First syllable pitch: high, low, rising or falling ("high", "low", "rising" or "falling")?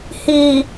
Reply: low